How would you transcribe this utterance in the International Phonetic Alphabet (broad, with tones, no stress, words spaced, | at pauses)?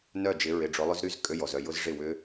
nœ˥˩ d͡ʒɪ˨˦ɹɪ˨˩˦ ɖ͡ʐʊ˨˦lˠʏ˦˥zɾy˧˥˧z kʼø˧˥˧jɔ˨zœ˥˩jʊ˦˥z ʐɪ˥˩wʏ˦˥